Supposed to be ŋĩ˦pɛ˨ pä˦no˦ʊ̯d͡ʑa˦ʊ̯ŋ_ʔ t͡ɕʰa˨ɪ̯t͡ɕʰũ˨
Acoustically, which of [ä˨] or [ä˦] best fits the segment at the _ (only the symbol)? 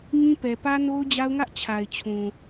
ä˦